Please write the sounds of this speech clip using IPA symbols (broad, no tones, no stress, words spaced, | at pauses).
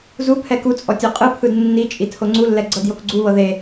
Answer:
zu pʰɛkut͡sʼɔ tʲoqʼɯpʰɯd nːi t͡ʃʼitʰoŋ͡ǀulːɛ ɡ͡ǀɤdjokɡ͡ǀuβɤ ðe